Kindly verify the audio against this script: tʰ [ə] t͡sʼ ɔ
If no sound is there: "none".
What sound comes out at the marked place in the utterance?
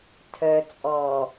œ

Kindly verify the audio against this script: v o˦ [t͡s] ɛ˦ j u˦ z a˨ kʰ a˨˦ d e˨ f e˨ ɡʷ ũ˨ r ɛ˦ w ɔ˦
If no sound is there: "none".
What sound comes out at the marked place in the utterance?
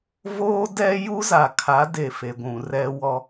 d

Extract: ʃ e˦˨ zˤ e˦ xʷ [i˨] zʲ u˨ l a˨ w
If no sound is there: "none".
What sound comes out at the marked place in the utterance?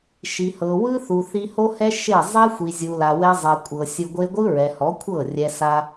i˨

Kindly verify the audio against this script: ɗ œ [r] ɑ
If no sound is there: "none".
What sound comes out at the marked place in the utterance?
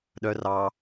r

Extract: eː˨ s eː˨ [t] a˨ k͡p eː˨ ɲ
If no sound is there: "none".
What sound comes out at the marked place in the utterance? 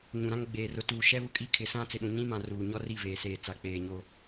t͡s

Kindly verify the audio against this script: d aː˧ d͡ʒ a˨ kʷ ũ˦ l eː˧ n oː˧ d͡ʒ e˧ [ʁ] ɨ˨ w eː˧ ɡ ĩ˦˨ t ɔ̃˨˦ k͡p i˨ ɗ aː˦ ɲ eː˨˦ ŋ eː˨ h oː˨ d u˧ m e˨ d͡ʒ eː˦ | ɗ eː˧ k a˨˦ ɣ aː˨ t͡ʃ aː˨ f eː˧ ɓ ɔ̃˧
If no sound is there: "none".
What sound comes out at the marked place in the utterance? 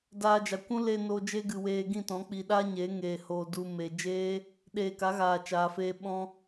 ɡ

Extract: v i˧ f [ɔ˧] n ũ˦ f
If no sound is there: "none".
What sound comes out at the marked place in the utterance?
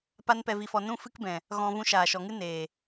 ɔ˧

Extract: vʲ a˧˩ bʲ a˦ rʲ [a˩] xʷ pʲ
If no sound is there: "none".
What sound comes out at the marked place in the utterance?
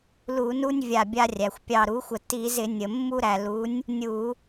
æ˩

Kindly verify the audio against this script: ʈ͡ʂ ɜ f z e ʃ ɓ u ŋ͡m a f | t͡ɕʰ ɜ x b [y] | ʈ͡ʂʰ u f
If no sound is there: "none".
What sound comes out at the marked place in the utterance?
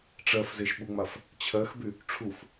y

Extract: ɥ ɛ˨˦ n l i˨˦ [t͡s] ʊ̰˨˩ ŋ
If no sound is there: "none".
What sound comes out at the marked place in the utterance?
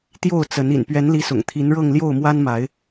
s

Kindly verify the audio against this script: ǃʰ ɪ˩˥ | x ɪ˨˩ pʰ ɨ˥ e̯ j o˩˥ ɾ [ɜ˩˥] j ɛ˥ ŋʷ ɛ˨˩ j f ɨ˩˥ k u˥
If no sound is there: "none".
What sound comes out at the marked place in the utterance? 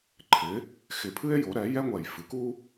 ɛ˩˥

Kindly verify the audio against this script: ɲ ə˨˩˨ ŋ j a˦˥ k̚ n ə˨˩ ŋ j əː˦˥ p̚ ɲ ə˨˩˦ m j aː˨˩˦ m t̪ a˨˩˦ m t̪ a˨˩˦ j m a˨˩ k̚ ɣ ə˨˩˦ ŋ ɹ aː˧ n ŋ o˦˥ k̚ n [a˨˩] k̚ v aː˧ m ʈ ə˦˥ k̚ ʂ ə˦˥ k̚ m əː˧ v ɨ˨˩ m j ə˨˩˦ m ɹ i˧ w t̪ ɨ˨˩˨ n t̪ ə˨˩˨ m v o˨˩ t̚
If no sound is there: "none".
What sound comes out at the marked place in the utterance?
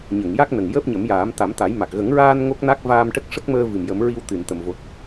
a˦˥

